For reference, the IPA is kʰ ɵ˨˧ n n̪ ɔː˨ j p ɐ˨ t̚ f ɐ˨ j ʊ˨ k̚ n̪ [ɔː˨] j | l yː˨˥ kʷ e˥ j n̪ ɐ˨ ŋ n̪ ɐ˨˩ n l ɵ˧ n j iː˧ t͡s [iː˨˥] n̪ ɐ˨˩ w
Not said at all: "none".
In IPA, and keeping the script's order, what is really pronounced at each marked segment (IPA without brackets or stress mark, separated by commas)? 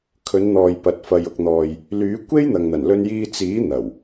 ɔː˨, iː˨˥